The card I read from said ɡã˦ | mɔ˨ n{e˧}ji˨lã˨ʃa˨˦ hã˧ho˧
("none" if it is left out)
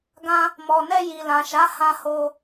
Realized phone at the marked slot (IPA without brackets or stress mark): ɛ˧